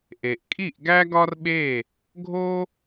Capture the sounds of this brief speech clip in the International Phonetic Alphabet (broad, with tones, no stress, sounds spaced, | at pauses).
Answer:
ʔ e˨ ʔ kʼ i˦˨ ʔ ɡ æ˦ ɡ ɒ˦ r ɓ e˦˨ | ɡʱ o˦